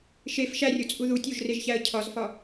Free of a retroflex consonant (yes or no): yes